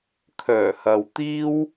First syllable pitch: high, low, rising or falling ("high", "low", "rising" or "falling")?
low